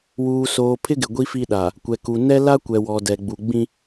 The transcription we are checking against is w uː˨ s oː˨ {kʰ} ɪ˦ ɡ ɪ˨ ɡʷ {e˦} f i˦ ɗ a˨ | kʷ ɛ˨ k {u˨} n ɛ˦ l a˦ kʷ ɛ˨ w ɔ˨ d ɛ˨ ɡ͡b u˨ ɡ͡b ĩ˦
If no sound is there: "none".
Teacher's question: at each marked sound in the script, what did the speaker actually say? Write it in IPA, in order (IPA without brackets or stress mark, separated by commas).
pʰ, i˦, u˨